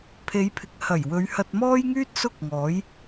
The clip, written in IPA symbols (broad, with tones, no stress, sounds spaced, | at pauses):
pʰ e˨˧ j pʰ ɪ˨ k̚ h ɐ˨˩ j w ɵ˨˧ ɥ h ɐ˧ t̚ m ɔː˥ j ŋ yː˥ t̚ s ʊ˥ k̚ ŋ ɔː˨˥ j